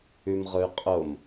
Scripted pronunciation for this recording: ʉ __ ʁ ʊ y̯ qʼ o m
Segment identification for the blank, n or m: m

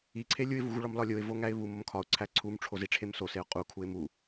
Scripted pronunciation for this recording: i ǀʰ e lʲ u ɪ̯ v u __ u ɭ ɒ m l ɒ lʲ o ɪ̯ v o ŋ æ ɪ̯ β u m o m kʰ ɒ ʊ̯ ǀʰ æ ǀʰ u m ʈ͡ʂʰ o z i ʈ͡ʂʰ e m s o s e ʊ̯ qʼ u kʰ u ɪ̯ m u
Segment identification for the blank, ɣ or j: ɣ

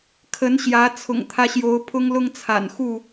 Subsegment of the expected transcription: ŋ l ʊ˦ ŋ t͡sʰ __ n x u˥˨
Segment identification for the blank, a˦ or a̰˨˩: a̰˨˩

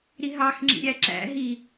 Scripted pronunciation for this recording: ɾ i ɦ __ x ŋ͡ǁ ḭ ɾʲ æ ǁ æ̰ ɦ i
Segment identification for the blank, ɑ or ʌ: ɑ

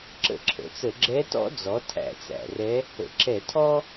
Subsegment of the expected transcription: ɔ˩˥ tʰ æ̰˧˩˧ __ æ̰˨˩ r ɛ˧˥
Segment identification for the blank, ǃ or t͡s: t͡s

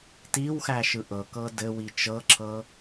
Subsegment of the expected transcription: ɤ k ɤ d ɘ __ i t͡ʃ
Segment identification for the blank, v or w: w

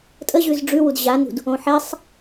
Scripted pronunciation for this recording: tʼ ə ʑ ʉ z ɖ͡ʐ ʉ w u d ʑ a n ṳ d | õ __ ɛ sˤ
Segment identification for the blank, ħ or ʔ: ħ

